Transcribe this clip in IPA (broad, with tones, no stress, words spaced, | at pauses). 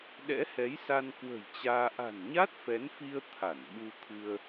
ɗɛ̰˧˥hɛ˨˦jsa˧n kwə̤˨˩j t͡ɕaː˧ ʔa̤˨˩nɲa˦˥t̚ fɛ˨˦nfi˧ə̯ t̪ʰa˧˩nɓu˧ t̪ʰɨ˧ə̯